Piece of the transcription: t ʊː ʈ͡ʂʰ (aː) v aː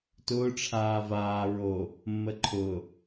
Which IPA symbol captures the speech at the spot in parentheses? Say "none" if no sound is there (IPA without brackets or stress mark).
aː